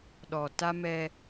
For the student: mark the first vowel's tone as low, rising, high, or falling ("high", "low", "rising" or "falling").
low